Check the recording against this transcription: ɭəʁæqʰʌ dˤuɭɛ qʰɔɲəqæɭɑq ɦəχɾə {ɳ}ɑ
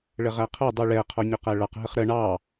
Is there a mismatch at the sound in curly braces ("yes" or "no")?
no